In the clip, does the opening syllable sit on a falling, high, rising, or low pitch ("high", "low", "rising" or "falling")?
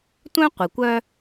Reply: high